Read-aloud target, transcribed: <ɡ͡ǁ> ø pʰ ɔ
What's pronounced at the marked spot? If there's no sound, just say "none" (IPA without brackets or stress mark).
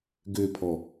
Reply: ɡ